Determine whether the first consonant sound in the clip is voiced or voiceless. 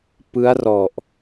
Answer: voiceless